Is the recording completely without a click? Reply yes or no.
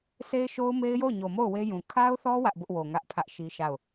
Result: yes